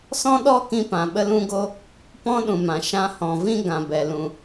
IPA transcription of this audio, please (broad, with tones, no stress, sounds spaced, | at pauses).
s ɔ̃˦ ɗ ɔ˦ k ĩ˧ p ã˨ ɓ ə˧ l ũ˧ ɡ o˧ | p ɔ̃˦ ɗ ũ˨ m ã˨ ʃ ã˧ h ɔ̃˨ v ĩ˦ ɡ ã˨ b ɛ˨ l ũ˨